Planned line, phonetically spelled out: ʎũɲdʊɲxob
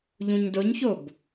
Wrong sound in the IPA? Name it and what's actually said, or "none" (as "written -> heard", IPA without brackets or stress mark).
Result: x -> ç